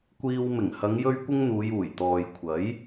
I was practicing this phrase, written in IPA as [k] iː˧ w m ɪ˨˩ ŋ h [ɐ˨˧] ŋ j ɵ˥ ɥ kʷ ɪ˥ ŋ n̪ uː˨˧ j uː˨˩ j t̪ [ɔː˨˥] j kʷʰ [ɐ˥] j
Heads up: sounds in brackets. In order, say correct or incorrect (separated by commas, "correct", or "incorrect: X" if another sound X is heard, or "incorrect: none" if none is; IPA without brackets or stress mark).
incorrect: kʷ, correct, incorrect: ɔː˨, incorrect: ɐ˨˥